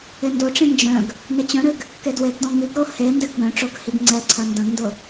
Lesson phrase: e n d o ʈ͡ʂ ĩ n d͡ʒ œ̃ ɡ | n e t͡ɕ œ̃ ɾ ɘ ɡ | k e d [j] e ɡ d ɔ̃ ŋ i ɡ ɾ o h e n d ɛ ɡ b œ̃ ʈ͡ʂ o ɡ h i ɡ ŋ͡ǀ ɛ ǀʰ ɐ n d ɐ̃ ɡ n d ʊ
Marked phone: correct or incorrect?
incorrect: w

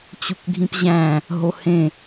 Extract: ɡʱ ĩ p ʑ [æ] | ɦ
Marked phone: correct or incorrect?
incorrect: æ̃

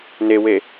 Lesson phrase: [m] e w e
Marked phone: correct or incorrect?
incorrect: n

